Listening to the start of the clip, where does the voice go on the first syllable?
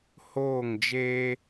falling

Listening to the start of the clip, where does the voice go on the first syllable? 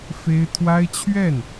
high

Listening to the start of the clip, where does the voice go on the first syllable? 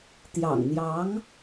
low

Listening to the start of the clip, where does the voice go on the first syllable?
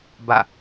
falling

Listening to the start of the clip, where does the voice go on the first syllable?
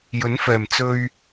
rising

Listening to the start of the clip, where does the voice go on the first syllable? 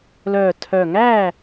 low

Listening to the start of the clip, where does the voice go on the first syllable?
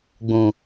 low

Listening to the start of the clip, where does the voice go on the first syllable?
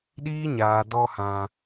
high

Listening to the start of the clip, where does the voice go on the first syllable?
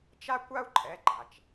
high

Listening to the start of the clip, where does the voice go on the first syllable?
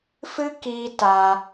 high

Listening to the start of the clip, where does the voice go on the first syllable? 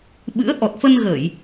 rising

